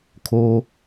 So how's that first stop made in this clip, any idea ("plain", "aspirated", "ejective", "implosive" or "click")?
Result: aspirated